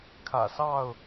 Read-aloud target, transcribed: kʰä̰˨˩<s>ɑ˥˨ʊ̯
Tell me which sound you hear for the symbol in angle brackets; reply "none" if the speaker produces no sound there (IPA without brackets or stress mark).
s